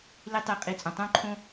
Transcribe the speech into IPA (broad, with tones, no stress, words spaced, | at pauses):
li˦ tˤi˧qʼi˧ t͡sʼõ˨tˤõ˦ǃʰõ˦